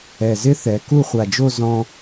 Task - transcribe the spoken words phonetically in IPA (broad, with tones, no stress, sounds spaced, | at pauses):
ɛ˧˩ z ɪ˥ θ ɛ˩˧ k u˥˧ χʷ a˧˩ d͡ʒ o˥˧ z ɔ̃˧